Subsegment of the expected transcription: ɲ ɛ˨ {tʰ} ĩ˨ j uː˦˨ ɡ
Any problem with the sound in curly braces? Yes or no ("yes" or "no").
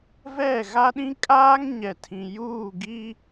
no